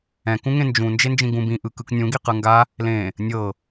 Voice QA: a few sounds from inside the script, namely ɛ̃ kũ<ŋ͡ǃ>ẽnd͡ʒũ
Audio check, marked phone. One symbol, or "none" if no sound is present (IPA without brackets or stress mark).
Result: ŋ